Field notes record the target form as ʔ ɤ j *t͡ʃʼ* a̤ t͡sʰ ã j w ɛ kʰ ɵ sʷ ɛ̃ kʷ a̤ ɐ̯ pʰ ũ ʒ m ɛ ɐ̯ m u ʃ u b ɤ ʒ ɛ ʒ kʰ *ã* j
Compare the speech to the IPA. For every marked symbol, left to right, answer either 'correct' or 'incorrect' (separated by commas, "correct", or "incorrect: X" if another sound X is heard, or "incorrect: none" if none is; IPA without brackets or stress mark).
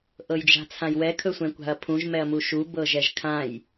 incorrect: d͡ʒ, correct